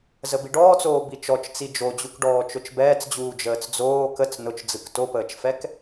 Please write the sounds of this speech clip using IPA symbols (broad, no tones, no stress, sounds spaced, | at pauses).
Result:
z ə b i ɖ ɔː t͡s oː b i t͡ʃ ɔ t͡ʃ t͡s i d͡ʒ o d͡ʑ u k ɖ ɔː t͡ʃ ʊ t͡ʃ b ɛː t͡s d͡ʑ uː d͡ʒ əː t͡s d͡z oː k ə t͡s n ʊ t͡ʃ d͡z ɯ k t o p əː t͡ʃ f ɛ k